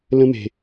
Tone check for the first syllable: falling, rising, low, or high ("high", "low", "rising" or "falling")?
high